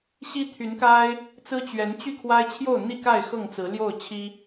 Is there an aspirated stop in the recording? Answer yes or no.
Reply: yes